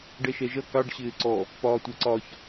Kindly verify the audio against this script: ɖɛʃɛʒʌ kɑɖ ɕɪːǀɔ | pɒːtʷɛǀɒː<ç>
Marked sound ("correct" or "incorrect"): correct